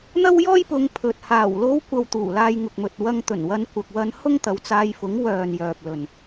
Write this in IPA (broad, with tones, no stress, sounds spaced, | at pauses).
n̪ ɐ˥ w j ɔː˥ j p ʊ˨˧ ŋ pʰ ɵ˨ t̚ h aː˨˩ w l o˧ w kʷ ɐ˨ w t̪ uː˨˩ l aː˧ j ŋ ʊ˨ k̚ m ɵ˨ t̚ w ɐ˧ ŋ t̪ ɵ˨˩ n w ɐ˧ n kʷ ɐ˨ k̚ w ɐ˧ n h ʊ˥ ŋ t̪ ɐ˨˧ w t͡s aː˧ j f ʊ˨˥ ŋ w œː˨ n j œː˨ p̚ l ɵ˨ n